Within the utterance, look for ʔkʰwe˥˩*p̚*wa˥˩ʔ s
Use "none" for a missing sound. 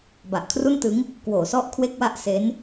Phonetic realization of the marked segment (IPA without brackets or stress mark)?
k̚